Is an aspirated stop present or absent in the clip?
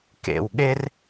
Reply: absent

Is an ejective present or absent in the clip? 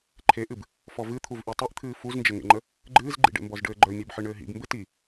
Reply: absent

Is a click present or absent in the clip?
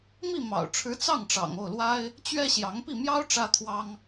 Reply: absent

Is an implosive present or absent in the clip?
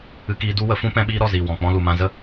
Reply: present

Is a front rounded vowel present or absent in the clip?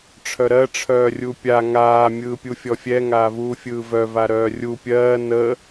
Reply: present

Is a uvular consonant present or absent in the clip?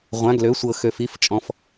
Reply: present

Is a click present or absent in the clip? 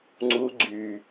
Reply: present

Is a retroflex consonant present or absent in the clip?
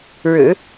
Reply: present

